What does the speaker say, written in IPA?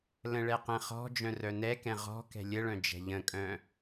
l ə̃ ɭ ɛ q ɛ̃ χ ɔ̤ d͡ʒ œ̃ r œ n ɛ k ɛ̃ ʁ ɔ̤ k ɛ̤ lʲ ə ɭ œ̃ d͡ʒ ɛ̤ ʎ ə̃ kʼ œ̃

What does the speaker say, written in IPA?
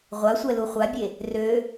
ʁʷ a sʷ ɛ l u χʷ a bʲ e | r ø

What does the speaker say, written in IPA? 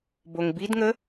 b o ŋ b i d ŋ ə

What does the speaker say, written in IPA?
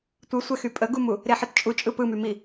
tʷ ɯ sʷ ɛ x y pʼ ə ɡ u m u | ɾ e ħ ɘ t t͡ʃʼ u t͡ʃʼ ɯ p ɯ m y m i

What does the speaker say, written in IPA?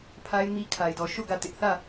pʰ a˦ ɪ̯ m i˦ kʰ a˦ ɪ̯ d ɔ˦ ʃ o˦˨ ɡ ä˦˨ t ɪ˦ ʔ θ ä˦˨

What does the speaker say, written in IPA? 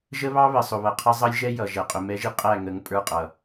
ʒ ə˦ β ɑ˦ β ə˨ sˤ ʊ˨ β ʌ˨ qʰ ə˦ zˤ ʌ˦ lʲ ʒ ɛ˦ j ʌ˨ ʒ ɛ˨ qʼ ʊ˨ m ɛ˦ ʒ i˦ qʼ æ˦˨ ŋ ə˨˦ ŋ pʼ ə˞˦˨ qʼ ʌ˨

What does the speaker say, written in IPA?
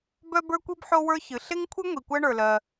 b œ˥ b ə˞˥ kʷ i˥ b ħ o˥ w ə˞˥ ç ɨ˩ ɬ e˥ ŋ kʷʰ ɨ˥ ŋʷ i˩ kʷ ɜ˥ ɳ ə˞˩ l ɜ˩

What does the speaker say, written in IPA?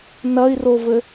n ɐ i̯ r o v ɘ

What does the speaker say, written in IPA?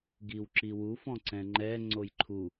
ɡ i w ǁ i w u f ɔ̃ ǀ ɛ̃ ŋ͡ǃ ɛ ŋ͡ǀ o j ǃʰ u

